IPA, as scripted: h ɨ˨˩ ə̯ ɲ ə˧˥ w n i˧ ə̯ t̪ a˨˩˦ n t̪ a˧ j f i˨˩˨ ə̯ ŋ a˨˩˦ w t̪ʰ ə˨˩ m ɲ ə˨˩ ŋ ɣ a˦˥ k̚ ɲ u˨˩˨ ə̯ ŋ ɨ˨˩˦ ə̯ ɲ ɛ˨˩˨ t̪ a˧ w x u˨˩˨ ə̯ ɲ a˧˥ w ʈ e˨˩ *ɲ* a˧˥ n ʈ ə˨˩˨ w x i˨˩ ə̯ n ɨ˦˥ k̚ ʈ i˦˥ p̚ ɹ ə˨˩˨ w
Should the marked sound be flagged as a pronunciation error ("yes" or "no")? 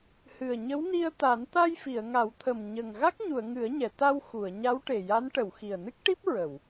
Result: yes